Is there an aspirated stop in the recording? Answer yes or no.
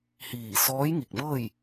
no